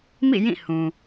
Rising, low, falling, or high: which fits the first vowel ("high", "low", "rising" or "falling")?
falling